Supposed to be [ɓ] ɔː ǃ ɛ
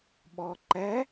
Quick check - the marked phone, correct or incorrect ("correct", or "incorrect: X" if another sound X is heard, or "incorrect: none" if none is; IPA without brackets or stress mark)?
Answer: correct